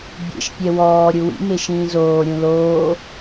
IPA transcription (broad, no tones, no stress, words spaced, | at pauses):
bʲḛʃpʲɛ wɔː ɾʲuwḭme ʃĩːzoː ɾʲũloː